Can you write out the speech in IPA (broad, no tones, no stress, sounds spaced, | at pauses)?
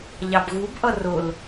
ʎ ɑ b ɣ u b ʔ ʌ r ʊ l